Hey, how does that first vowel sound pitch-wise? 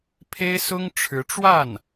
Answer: high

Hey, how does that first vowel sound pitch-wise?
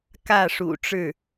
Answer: falling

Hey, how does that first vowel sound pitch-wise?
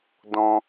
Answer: high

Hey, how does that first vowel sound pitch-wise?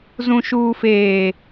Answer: low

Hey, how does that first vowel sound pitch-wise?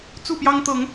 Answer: falling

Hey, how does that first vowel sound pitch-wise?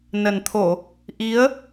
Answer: low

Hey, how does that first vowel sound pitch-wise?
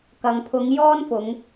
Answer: low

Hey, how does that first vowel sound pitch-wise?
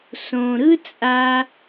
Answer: low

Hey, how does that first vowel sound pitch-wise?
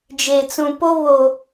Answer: low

